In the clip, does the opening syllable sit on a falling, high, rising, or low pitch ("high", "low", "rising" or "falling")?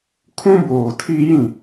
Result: high